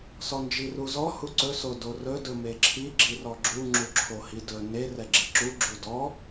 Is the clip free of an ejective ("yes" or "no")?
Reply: yes